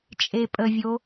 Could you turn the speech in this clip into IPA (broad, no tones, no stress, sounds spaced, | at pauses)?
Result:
t͡ʃʼ e pʼ ə vʲ o